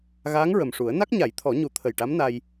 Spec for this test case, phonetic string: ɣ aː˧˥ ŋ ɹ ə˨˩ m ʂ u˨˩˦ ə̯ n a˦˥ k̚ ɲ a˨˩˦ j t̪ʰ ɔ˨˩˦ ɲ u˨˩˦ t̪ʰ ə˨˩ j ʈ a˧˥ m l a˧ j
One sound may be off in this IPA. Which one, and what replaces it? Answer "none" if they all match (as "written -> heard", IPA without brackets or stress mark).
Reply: l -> n